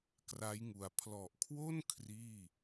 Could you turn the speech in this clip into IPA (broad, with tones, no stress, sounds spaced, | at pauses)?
k r a˦˥ j ŋ u˨˩ a̯ pʰ l ɔ˨˩ ʔ kʰ w o˥˩ n kʰ r iː˥˩